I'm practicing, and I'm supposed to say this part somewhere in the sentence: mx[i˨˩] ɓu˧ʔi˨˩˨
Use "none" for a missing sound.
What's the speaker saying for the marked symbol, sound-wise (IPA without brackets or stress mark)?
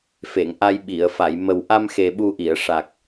e˨˩